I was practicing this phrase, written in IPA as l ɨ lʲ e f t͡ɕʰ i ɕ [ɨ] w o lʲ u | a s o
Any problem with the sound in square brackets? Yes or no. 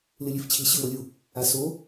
no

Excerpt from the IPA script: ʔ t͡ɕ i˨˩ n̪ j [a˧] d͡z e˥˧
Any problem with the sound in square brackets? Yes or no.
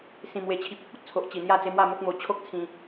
yes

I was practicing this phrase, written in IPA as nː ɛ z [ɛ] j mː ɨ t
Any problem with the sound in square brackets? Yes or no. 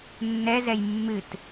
no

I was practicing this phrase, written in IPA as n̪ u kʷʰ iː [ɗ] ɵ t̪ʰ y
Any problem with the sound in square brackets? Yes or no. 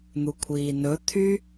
yes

